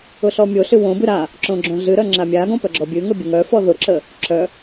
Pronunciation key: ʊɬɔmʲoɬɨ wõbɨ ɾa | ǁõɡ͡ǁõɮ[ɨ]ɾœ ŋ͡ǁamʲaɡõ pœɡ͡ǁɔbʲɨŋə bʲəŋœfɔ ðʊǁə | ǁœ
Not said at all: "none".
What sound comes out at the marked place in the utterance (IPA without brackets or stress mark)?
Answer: ɨ